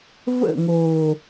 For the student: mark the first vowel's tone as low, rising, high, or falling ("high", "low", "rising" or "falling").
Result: falling